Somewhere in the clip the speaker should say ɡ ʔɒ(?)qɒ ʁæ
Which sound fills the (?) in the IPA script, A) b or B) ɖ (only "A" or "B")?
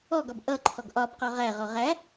A